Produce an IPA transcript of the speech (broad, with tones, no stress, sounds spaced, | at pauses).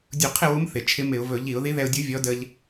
dʲ u˧˩˧ qʰ ɪ˥˨ w u˧˥ m θ ɪ˨˩ t͡ʃʰ ɪ˧˥ m ɪ˧˩˧ ʊ̯ v ɵ˧˩˧ ʎ i˧˩˧ ʊ̯ ð i˧˥ ð ɛ˧ ʊ̯ dʲ u˧˥ vʲ ɔ˧˥ d ə˧ ʎ